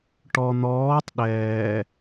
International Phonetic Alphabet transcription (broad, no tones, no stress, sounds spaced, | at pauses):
ʈ ɔ n̪ ɔː tˤ ɗ ɛː